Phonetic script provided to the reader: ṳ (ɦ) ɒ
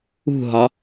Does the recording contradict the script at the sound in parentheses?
no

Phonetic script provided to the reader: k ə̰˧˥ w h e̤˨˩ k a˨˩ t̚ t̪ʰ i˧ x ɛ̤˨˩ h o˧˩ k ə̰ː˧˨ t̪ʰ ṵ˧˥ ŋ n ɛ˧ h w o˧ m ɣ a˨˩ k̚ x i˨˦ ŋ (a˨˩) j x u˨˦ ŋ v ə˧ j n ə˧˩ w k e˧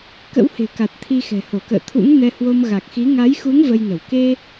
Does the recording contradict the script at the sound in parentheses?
yes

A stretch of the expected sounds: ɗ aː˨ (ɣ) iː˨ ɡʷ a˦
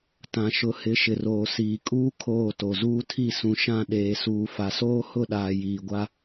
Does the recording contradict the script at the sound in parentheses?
yes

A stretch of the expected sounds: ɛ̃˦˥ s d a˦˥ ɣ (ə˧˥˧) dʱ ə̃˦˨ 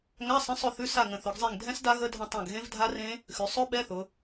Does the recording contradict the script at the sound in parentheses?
no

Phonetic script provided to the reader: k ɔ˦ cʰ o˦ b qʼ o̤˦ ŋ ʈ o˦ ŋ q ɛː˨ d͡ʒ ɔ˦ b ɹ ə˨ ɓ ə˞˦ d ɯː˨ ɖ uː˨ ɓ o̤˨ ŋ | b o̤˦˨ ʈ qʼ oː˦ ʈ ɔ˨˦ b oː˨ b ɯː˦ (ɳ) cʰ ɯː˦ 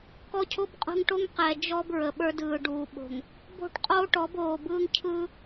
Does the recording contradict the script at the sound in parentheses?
yes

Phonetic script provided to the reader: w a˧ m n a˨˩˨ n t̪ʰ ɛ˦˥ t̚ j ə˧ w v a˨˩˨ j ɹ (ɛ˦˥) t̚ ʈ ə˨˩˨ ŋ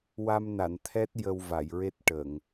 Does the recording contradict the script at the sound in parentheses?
yes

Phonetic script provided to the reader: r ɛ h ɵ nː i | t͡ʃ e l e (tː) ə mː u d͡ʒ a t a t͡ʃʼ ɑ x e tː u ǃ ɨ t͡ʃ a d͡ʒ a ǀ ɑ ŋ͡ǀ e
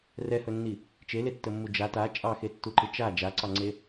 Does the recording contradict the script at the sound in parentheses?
no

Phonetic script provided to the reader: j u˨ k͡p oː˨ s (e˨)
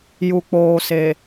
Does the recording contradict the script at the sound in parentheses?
no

